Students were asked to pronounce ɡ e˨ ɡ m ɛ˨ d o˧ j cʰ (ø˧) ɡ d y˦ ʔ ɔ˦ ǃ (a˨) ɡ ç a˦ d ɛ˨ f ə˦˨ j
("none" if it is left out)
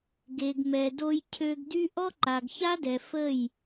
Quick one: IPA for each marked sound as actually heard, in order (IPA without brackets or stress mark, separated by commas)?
ø˧, a˨